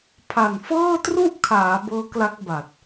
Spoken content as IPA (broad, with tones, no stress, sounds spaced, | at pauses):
pʰ a˨˩ n f ɤː˥˩ t r u˥˩ ʔ kʰ aː˩˦ b ɤː˦˥ k l a˦˥ k̚ b a˨˩ t̚